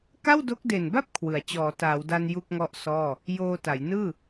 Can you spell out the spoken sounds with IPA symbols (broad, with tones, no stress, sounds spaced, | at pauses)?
k a˥˩ w d o˦˥ k̚ d e˨˩ n b a˥˩ p̚ kʰ w ɯ˩˦ a̯ t͡ɕ ɔː˩˦ t aː˩˦ w d a˧ n j u˥˩ k̚ ŋ ɔ˥˩ ʔ s ɔː˥˩ | j oː˧ t a˩˦ j n ɯː˥˩